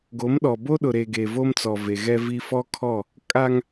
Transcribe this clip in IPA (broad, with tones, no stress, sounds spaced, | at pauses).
ɡ o˨˦ m ɗ ɔ˨ b o˦ ɗ ʊ˨ ɾ e˨ ɡ e˨ v o˦ m t͡s ɔ˨ v e˨ ɣ ɛ˦ v i˦ f ɔ˦ kʰ ɔ˦˨ | kʼ a˦ ŋ